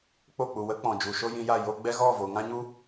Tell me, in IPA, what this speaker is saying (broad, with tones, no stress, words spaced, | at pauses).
k͡po˦˨k͡pu˨ wə˦k͡pɔ̃˨ d͡ʒu˨ʃo˦jĩ˧ja˦˨ jo˦ ɡ͡bɛ˦ ɣɔ˦˨vo˨ŋã˦ɲu˦